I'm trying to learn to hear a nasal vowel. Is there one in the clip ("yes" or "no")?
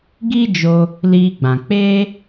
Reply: yes